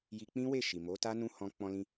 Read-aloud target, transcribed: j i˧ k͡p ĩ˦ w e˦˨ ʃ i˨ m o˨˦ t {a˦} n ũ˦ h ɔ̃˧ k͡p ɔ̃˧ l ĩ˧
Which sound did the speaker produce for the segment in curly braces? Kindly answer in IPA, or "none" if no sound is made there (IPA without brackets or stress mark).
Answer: a˦